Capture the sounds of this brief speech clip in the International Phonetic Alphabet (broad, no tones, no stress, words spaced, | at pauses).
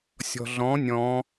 sʲɔ̤ɮɔ̃ nʲɔ̃